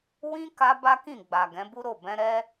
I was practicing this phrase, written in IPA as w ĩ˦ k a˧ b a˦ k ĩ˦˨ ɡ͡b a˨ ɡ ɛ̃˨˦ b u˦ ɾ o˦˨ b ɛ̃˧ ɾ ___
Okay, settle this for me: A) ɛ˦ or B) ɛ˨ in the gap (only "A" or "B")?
A